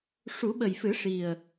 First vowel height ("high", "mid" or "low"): high